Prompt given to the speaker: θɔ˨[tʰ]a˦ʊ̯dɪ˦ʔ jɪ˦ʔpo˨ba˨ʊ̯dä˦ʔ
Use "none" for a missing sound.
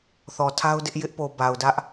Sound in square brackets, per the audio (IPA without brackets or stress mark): tʰ